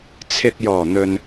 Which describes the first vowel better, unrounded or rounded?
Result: unrounded